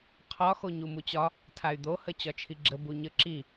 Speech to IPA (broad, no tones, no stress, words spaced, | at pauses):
qʰɒ xoɲumut͡ɕɒ | tʰay̯d̪ohə t͡ɕɒt͡ʃʰiɡ͡ǁə buɲə ǁi